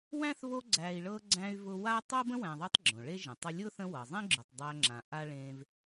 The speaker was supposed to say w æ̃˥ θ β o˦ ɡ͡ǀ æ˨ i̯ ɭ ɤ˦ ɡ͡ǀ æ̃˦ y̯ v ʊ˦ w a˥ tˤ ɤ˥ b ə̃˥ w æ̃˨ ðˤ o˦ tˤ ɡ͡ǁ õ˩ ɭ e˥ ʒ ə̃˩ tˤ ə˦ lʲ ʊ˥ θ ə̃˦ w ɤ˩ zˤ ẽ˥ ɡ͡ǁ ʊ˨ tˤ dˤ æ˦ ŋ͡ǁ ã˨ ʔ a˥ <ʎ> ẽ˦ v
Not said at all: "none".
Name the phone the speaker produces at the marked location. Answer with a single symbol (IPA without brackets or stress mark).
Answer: ɭ